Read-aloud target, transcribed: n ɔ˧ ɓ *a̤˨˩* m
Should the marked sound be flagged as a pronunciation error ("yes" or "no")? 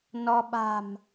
no